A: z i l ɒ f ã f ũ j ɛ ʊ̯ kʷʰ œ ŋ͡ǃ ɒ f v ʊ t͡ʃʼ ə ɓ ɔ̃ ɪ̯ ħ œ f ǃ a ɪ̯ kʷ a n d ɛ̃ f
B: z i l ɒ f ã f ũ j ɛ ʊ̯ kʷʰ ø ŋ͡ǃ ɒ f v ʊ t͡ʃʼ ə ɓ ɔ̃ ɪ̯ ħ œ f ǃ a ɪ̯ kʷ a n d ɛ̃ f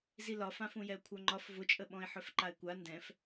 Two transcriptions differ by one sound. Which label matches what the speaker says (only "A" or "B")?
A